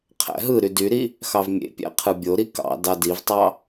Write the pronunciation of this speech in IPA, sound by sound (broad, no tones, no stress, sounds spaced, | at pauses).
qʰ æ̰ ɦ ɯ ɾ y d y ɾ i | x ɑ v mʲ ḛ pʲ æ̰ qʰ ɯ bʲ o ɾ i k ɑ̰ d ɑ d i v tˤ ɑ